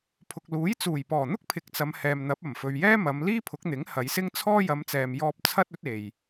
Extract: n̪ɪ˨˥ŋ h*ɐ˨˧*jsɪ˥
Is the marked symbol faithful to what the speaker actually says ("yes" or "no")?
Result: yes